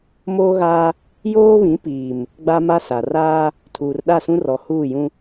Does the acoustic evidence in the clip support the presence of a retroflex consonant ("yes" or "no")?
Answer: no